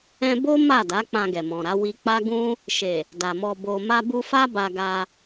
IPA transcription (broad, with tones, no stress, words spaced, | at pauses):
ɛ̃˧bo˦ ma˦˨da˨˦ k͡pã˧ɡɛ˨mɔ̃˨ɾa˨˦ wi˧k͡pa˦ ɡũ˦ | ʃe˨ | da˨mɔ˧ bo˨ma˧bu˧ fa˦ba˧ɡa˧